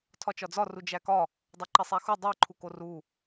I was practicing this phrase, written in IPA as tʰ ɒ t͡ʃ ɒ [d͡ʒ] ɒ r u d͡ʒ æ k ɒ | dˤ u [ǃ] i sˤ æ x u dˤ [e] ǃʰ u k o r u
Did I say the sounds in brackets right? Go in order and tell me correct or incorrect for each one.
incorrect, correct, correct

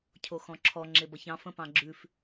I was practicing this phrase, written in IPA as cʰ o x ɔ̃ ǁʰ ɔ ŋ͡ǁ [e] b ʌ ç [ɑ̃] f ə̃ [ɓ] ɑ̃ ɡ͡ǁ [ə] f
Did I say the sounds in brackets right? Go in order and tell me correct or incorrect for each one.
correct, correct, incorrect, incorrect

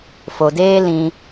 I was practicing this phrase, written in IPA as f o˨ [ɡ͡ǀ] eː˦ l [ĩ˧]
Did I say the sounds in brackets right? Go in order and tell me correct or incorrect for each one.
incorrect, correct

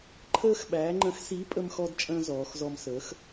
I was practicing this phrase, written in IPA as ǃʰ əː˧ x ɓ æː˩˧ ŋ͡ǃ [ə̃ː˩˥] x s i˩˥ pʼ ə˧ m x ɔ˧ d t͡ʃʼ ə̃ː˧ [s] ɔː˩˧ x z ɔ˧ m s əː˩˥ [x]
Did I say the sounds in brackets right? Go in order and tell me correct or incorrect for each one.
incorrect, incorrect, correct

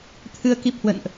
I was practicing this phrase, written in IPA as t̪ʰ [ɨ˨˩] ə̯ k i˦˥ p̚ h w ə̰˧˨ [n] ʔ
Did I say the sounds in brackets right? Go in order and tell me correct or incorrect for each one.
incorrect, correct

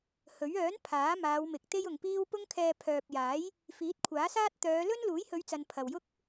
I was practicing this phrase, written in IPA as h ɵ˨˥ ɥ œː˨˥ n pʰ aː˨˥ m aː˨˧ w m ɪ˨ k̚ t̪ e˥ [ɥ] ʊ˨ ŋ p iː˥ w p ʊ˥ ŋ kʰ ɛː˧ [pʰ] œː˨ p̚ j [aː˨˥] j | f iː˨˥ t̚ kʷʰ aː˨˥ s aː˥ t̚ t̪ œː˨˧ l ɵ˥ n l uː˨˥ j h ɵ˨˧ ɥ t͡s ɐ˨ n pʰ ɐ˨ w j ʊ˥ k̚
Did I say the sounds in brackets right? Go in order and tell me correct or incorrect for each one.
incorrect, correct, correct

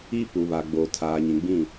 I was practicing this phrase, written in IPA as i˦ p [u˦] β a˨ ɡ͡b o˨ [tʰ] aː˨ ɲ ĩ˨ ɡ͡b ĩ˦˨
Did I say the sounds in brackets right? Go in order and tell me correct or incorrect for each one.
incorrect, correct

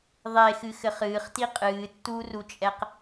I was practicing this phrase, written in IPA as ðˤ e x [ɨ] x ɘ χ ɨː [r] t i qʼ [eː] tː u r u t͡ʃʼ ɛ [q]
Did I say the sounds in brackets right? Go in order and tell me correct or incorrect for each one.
correct, incorrect, incorrect, correct

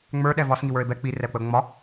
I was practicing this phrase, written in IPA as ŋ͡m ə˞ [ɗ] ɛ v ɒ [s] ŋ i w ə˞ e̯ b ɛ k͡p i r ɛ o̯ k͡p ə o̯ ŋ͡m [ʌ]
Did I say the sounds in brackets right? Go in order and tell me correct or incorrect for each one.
correct, correct, incorrect

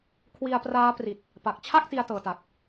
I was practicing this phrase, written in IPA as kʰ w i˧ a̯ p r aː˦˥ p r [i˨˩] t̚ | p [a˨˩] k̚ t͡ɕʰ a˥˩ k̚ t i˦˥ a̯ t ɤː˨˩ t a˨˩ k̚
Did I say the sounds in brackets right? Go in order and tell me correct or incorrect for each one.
correct, correct

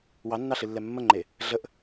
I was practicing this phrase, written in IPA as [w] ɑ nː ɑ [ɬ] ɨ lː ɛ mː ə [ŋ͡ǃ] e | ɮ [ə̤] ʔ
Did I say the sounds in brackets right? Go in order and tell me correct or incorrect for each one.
correct, correct, correct, incorrect

